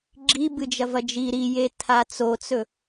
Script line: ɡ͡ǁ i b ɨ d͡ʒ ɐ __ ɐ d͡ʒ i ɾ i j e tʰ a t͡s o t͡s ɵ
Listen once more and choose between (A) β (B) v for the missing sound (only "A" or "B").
B